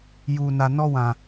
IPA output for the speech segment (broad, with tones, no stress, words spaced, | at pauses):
juː˨na˨ nɔ˦wã˨